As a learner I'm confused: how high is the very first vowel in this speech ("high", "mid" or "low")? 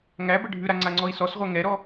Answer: low